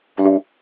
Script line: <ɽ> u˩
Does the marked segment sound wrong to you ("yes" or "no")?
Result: yes